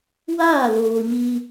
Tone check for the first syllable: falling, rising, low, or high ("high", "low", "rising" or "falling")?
falling